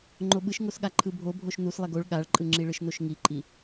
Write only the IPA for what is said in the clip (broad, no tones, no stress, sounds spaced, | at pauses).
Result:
ŋ͡ǃ o ɓ ɯ ʃ ŋ o s ɠ a ǃʰ ɯ bʱ o bʱ o ʃ n u s lˠ ɛ ɡ o ɭ ɠ a ɭ ǃʼ ɯ ŋ͡ǁ i ɭ ɯ ʃ n o ʃ ŋ i ǃʼ i